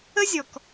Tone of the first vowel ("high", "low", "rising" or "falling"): high